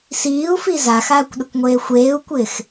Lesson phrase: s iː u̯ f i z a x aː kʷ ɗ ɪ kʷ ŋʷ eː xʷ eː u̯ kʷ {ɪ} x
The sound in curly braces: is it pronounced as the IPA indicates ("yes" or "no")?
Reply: no